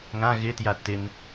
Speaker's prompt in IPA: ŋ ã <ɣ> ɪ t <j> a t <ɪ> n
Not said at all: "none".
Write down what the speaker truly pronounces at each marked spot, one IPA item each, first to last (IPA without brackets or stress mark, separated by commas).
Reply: ɣ, j, ɪ